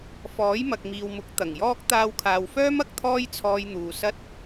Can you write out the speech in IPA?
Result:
fɔː˨˥jmɐ˨k̚miː˨wmʊ˨˥k̚ t̪ɐ˨˩ŋjɔː˥k̚ t̪aː˧wkʰaː˨wfœː˥m ɐ˥k̚t̪ʰɔː˥jt͡sʰɔː˧jn̪uː˨ sɐ˧t̚

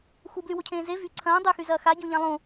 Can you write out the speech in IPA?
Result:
xublywocʰẽː ze vy ǀʰɐ̃ː dˤyxyzɐː xaɟõʎã lˠũ

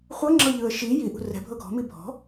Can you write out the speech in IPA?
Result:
χʷɤŋ͡ǁɤʎɯə̯ ʃi jiʔṳ rɛ̤bʱɤ ɡʱɔ̤mi bʱɔ̤

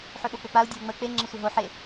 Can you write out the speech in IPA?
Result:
ħøɓok͡pøk͡pau̯ dʲɐu̯ŋ͡mə k͡pe ŋ͡ǁəsʷəɦo ħe

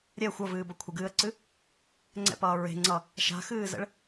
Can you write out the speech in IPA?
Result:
ɾʲɛ xʷʌvɨːbʌ kʷʰəɡɨːə̯ǀɨ | ŋ͡ǀɛ̰pʌː ɹe̤ŋ͡ǀʌ | ʃa̤xɨːzə̰ɭ

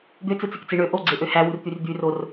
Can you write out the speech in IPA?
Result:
d̪øt͡sɯt͡sikt͡si ɳø ʔoɡ͡ǀeʔø hæwurt̪yr d̪yror

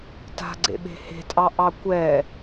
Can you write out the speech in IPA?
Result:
ta̤ɡ͡ǀḛɓe̤ he̤tʼɑ ʔɑkʷɛ

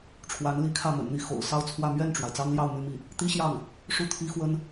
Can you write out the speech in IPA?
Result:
ʈ͡ʂʰwa˧˥nli˧˥kʰä˥˩ mə̰˨˩nn̪i˥˩ xo̰˨˩ʊ̯ sɑ˥˧ʊ̯ t͡sʰwä˥˧ mɥɛ˥˩nʈ͡ʂwa˩ɪ̯ t͡sɑ˥ŋljɑ˥˩ʊ̯ my˥mi˥˩ | t̪i˥ɕjɑ˥˩ŋ | ʂu˥˩t̪ʰi˥xwə˥n

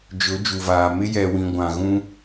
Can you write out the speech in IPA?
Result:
d͡ʒʊ˨˦d͡ʒu˨vaː˨ mɪ˦ jɛ˨wĩ˨ ɡʷã˨ ɣũ˦

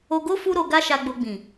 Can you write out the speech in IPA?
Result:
o˧ɡo˦ fu˦ɾo˧ɡa˦ʃa˧ ɡ͡bo˧ɡ͡bĩ˨

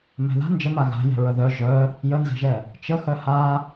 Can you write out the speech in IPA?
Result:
mɛ̤ða̤ nd͡ʒəma ɣa̤ jɛ̤ɹəðœ ʒœ | jənzɛ̤ʒɛ | t͡ʃəxœ ha

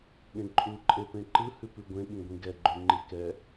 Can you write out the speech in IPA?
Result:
ɠẽǃʼu ǃʼepẽǃɯ hʉpʉɡʷẽ ɠĩɡʷĩɡɛ ɡ͡ǃʉŋ͡ǃikɛ

